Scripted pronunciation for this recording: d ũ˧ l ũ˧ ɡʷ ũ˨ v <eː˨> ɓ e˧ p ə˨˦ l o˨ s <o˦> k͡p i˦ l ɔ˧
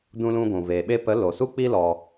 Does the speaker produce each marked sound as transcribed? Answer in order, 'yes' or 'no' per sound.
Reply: yes, no

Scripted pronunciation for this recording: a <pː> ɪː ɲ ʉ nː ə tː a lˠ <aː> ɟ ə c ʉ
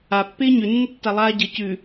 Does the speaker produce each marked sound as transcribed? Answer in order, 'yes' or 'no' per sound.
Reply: yes, yes

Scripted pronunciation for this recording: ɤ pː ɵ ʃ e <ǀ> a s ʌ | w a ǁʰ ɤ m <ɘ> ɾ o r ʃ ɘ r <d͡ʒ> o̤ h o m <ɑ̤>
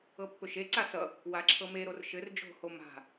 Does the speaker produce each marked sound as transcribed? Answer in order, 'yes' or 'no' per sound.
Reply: yes, no, yes, no

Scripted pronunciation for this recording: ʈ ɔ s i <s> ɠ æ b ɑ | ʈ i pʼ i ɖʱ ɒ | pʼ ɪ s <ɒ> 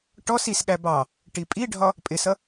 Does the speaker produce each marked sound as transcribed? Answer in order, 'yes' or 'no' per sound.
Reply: yes, no

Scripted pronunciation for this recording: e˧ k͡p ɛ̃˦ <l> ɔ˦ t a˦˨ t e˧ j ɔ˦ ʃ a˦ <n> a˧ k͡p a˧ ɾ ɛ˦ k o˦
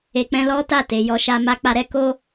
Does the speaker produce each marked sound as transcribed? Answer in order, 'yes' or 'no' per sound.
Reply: yes, no

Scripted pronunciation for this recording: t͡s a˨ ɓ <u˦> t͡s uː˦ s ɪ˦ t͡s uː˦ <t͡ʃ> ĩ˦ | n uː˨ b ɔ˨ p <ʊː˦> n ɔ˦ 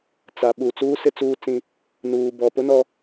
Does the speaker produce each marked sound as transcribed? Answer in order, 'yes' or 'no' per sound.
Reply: no, no, no

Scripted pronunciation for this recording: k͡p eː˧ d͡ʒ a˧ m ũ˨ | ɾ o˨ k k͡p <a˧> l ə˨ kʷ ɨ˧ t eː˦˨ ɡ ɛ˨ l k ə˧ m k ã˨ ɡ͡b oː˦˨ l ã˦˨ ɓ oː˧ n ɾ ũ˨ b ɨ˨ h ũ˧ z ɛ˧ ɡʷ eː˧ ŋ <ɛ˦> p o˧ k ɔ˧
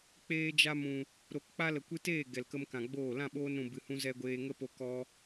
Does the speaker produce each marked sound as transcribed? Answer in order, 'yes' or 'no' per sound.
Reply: yes, no

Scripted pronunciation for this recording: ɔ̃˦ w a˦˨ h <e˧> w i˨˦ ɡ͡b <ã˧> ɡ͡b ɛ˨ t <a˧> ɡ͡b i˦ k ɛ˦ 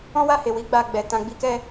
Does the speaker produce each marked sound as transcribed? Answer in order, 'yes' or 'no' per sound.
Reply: no, no, no

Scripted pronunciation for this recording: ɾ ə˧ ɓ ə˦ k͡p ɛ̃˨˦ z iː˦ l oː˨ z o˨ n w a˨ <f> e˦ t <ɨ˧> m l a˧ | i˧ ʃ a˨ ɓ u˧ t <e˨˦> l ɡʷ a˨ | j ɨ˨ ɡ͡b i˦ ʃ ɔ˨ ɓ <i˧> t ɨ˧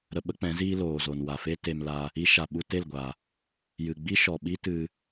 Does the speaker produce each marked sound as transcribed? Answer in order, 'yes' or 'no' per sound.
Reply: yes, no, no, no

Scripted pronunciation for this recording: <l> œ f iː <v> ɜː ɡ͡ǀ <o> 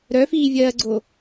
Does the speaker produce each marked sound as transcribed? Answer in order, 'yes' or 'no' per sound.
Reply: no, no, yes

